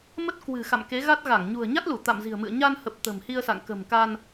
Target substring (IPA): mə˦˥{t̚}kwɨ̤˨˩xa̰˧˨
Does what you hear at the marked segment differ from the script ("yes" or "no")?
no